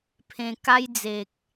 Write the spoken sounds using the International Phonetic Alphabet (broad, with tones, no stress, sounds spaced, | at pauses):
pʰ ẽ˧ k a˦ j d͡z e˨ k̚